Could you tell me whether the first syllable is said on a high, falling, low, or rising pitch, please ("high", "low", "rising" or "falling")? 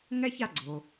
high